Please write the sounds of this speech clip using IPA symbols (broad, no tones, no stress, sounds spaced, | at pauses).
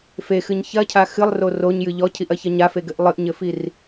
f e x ɨ ɲ ç ɐ cʰ a x ɨ lˠ r o r o ɲ j ɨ ʎ ɔ cʰ i ʔ ɐ ç ɐ ɲ a f e ɡ ɘ ʔ lˠ ɨ ʔ ɲ ɘ f i r